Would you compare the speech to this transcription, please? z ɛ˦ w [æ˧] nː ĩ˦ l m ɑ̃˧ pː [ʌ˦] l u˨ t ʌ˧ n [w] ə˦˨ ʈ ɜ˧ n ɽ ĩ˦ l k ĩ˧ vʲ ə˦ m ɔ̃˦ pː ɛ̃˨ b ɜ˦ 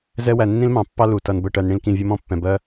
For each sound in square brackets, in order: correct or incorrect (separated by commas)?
correct, incorrect, incorrect